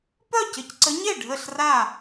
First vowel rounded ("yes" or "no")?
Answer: yes